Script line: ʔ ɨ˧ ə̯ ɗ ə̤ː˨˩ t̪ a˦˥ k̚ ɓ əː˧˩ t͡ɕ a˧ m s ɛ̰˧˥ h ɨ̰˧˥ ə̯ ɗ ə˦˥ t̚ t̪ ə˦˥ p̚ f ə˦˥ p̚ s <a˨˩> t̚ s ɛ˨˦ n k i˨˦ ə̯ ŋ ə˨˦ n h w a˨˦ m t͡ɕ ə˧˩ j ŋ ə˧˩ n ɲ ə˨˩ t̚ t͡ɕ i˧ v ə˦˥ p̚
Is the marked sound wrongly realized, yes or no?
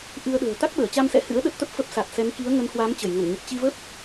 no